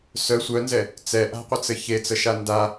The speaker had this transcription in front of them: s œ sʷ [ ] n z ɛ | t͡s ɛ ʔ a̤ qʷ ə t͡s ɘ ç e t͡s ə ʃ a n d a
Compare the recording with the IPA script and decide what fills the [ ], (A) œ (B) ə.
A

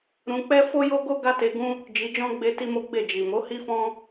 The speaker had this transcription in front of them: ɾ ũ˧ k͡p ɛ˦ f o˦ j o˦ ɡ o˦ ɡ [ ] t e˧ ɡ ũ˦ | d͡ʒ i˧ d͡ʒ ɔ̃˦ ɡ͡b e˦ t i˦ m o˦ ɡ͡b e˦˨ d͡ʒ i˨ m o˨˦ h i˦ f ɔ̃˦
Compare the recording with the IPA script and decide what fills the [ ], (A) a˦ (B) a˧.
A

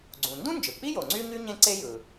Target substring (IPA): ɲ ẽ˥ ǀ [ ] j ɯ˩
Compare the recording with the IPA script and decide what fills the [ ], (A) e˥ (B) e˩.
A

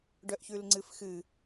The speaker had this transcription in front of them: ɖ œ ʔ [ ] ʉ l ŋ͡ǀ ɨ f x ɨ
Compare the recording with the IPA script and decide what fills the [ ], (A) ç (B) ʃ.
A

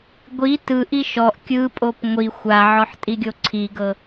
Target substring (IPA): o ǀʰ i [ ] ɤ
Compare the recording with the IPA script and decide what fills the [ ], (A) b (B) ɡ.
B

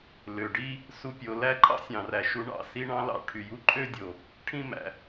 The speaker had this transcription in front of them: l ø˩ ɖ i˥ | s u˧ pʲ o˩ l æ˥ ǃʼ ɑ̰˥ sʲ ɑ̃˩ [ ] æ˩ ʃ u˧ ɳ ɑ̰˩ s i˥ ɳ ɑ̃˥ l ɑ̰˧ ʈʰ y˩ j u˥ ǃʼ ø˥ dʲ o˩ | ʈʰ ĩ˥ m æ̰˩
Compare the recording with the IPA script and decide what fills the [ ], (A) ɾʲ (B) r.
B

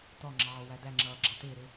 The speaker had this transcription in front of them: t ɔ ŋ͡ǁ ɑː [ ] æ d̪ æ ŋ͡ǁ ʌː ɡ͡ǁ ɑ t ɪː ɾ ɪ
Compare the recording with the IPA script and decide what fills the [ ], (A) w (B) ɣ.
A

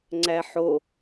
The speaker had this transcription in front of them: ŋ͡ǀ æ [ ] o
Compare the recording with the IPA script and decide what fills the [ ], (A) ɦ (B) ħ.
B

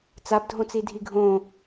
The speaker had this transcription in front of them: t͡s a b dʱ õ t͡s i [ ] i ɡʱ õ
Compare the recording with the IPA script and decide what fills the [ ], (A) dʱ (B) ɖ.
A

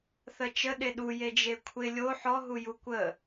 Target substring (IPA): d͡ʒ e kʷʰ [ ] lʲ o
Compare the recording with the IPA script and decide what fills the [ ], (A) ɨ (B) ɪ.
B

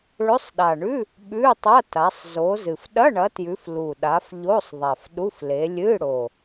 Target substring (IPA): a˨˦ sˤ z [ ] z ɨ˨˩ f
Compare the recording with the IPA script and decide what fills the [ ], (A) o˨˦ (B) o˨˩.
A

